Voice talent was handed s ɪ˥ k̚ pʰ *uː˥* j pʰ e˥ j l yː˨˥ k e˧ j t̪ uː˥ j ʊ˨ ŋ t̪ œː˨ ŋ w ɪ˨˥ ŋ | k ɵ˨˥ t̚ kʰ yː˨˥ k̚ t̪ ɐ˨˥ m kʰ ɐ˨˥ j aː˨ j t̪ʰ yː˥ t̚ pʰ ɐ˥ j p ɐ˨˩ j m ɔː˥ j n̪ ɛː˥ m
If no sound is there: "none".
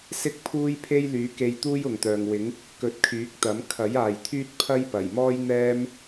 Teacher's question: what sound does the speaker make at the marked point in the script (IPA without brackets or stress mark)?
uː˥